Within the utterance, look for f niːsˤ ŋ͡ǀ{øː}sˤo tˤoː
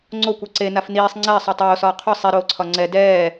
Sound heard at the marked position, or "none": ɛː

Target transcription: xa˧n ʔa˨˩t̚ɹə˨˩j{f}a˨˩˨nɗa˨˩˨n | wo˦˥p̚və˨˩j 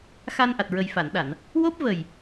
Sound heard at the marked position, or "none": f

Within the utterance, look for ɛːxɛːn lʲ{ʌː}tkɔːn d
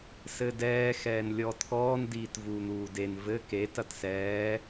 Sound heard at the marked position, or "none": ɔː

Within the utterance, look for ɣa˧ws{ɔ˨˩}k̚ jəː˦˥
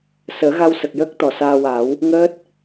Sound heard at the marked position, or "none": ə˨˩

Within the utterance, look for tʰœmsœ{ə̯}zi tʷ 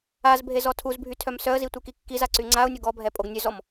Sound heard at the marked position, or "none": ə̯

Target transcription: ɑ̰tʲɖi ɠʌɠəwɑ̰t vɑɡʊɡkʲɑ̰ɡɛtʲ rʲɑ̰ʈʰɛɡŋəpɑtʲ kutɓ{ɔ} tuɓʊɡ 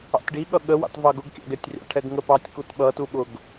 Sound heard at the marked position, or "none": ʌ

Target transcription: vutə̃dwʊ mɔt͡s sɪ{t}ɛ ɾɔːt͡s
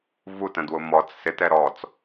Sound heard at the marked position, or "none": t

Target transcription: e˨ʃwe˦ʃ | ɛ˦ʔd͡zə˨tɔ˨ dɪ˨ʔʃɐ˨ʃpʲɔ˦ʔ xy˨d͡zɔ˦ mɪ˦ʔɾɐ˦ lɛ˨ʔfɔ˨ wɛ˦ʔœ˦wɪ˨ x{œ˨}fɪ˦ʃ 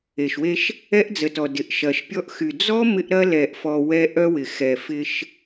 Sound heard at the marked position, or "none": ɛ˨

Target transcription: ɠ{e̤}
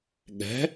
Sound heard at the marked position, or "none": ɛ̤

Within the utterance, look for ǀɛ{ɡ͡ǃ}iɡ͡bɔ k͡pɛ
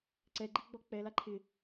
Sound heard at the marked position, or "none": ɡ͡ǃ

